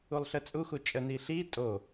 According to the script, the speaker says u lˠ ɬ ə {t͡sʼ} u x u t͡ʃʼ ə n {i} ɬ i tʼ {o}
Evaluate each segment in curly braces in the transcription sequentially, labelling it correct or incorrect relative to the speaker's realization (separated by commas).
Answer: correct, correct, correct